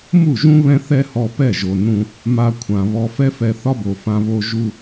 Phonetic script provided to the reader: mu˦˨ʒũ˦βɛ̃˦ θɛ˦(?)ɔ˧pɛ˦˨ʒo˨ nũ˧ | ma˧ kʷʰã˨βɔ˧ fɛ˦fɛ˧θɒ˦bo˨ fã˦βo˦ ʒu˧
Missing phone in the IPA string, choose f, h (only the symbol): h